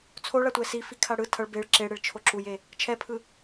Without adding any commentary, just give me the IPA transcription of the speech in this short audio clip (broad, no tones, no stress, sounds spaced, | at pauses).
t͡sʰ o ɭ a tʷ ɛ s i f i kʰ a ɽ ɯ tʰ ʌ ɭ b e ɭ ǁ e ɽ e ɭ t͡ʃʰ o ǁ u j e | t͡ʃʰ ɛ pʰ ɯ